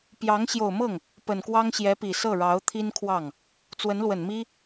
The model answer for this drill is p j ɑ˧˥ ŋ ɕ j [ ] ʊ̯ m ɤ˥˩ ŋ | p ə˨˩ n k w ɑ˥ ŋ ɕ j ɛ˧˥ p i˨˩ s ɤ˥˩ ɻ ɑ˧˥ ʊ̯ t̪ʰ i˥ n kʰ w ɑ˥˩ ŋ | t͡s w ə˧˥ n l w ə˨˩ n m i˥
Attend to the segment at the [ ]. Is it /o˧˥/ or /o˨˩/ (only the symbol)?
o˨˩